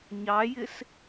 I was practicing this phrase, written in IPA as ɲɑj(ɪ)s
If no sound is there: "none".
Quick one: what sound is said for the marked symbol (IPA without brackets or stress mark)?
ɪ